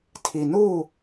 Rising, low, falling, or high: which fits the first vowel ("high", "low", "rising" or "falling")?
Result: low